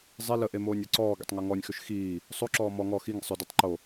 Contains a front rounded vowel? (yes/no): yes